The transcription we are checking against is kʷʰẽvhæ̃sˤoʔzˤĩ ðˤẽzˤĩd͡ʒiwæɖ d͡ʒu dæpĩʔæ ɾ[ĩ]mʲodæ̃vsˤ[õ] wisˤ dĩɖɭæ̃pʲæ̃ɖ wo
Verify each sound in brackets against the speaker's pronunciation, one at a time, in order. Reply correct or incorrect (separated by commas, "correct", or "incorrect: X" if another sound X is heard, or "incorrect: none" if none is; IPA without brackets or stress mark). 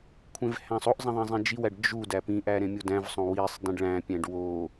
incorrect: ẽ, correct